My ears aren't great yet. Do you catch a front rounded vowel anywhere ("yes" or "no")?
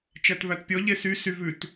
yes